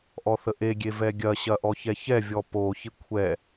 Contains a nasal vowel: no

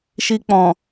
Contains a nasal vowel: yes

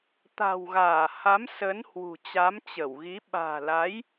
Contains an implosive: yes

